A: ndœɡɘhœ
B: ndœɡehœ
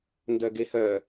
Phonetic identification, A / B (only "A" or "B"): B